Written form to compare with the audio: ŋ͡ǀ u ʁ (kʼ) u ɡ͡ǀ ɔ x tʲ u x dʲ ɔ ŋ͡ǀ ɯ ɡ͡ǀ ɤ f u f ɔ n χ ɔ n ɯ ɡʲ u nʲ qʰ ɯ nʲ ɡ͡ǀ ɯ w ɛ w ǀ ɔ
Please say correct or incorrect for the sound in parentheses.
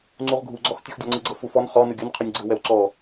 incorrect: ɡʱ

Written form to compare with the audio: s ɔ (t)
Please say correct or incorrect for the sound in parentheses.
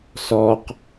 incorrect: q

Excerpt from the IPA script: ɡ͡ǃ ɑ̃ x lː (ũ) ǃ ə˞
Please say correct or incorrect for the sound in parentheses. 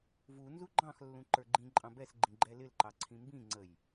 correct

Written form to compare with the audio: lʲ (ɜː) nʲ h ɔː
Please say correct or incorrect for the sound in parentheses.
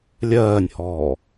correct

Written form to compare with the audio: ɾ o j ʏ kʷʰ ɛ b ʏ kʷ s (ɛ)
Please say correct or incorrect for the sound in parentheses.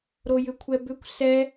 correct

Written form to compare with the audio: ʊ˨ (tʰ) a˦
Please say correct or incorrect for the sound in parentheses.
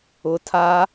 correct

